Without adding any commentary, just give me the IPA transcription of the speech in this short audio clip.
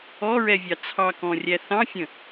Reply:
ɔ ɹ ɛ vʲ ɑ t͡sʰ ɑ k ɔ̃ rʲ æ θ ɑ̃ fʲ ə̃

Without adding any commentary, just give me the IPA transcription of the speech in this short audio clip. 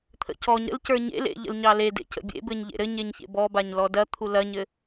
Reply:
t̪ʰ ə̰ c ɔ ɲ ɾ ə̰ l c ə˞ ɲ ḛ l ḛ ʎ ə̰ l ɲ ɑ l e d ḛ c ə̰ bʲ ḛ b ɘ ɲ ʎ ḛ ɾ ɘ ɲ e ɲ ç ḛ b ɔ b a ɲ l ɔ d ɐ t̪ʰ u l ɐ ɲ ɘ

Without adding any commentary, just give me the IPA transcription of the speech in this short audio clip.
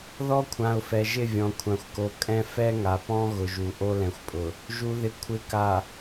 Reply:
ð ɔ˦ kʷʰ ã˨ ʊ̯ f ɛ˨ ʒ ɪ˦˨ vʲ ɔ̃˨ kʷʰ ã˨ xʷ k o˨ kʼ ɛ̃˦ f ɛ˦ ŋ a˨ p ɔ̃˦ ɣ ʊ˨ ʒ u˨ ʔ o˦ l ɛ̃˨ xʷ pʼ ʊ˨ | ʒ u˨ ð ɪ˨ kʷʰ ɪ˨˦ k a˨

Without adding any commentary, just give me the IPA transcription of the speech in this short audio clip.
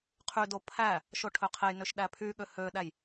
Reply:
qʰ y d o pʰ æ | ʃ o ʈʰ ø qʰ e j n ø ʃ ɗ æ pʰ y ɠ ø h ø ɗ æ j

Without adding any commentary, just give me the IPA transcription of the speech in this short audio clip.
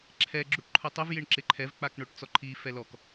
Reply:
ǁʰ ɛ ɡ͡ǁ u ʈ ǃʰ ʊ tˤ ɪ v j ɪ ɳ ǁ ɪ ǃʰ ɛ v k͡p a k ɳ o ʈ t͡s ɔ ǃʰ i f ɛ l ɔ k

